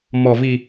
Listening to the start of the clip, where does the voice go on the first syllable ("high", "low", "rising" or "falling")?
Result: low